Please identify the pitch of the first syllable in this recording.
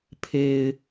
low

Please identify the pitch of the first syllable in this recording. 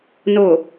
low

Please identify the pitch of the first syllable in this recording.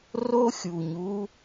high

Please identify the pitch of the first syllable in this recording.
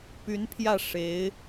rising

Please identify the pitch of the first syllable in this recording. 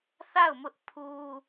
falling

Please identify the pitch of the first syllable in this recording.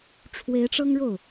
rising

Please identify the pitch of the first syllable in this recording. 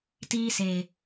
high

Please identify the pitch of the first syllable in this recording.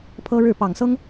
high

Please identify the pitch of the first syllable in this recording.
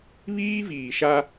high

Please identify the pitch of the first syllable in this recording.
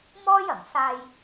high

